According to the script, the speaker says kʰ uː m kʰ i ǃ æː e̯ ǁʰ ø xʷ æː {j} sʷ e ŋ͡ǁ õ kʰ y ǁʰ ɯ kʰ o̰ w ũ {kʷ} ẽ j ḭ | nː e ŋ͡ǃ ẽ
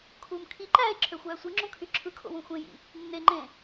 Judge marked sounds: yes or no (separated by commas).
no, no